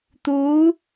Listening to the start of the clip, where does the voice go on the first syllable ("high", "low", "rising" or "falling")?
rising